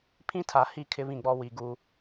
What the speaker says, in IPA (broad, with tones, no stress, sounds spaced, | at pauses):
pʰ ĩ˦ tʰ a˨ h i˦˨ kʰ ɪ˦ β ĩ˦˨ ɡ͡b ɔ˦ w i˨ ɡ u˦